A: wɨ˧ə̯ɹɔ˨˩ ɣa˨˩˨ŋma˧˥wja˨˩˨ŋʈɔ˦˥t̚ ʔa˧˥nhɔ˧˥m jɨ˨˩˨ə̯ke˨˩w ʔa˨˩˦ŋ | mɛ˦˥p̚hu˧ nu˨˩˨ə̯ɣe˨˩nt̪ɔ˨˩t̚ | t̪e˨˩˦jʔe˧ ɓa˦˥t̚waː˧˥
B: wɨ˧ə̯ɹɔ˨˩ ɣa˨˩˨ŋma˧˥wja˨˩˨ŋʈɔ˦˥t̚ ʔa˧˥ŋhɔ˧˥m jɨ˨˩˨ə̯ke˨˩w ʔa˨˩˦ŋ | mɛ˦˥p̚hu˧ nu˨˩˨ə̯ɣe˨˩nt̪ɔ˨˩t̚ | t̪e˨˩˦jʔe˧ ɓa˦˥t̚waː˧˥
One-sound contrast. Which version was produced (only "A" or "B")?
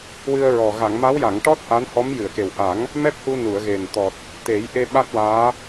A